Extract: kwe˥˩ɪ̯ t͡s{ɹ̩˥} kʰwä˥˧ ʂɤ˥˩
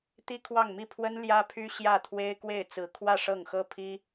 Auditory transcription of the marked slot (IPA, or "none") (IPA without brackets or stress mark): ɹ̩˧˥